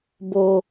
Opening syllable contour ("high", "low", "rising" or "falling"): high